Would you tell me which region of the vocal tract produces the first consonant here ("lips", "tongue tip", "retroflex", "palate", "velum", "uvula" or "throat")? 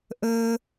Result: throat